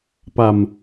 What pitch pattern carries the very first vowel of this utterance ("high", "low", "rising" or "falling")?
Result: low